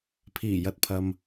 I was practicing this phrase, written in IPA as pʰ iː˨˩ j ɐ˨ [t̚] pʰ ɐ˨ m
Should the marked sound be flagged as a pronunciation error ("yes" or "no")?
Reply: no